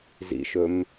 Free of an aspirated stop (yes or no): yes